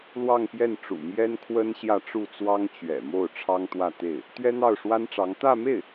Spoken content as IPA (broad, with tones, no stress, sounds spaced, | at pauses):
l w ɑ˥˧ ŋ p j ɛ˥˩ n ʈ͡ʂ ṵ˨˩ m j ɛ˥ n kʰ w ə˥ n ɕ j ä˥˧ ʈ͡ʂ u˥˩ t͡s w ɑ˥ ŋ t͡ɕ ɥ ɛ̰˨˩ m o˥˩ ʊ̯ ʈ͡ʂʰ ɑ˥ ŋ t̪ w ä˥˧ t̪ e˥˩ ɪ̯ | t̪ ɥ ɛ˥ n̪ ɑ˥˩ ʊ̯ ʂ w a˥ n ʈ͡ʂ ɑ˧˥ ŋ t̪ ä˥˧ m e˥˩ ɪ̯